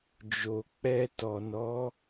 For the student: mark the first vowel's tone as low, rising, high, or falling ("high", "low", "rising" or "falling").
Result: low